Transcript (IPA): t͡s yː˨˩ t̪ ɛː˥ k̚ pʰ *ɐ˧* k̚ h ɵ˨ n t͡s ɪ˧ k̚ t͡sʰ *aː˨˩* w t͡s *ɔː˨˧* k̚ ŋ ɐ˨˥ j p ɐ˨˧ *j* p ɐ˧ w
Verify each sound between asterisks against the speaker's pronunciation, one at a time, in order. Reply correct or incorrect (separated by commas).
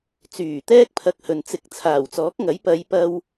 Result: correct, correct, incorrect, correct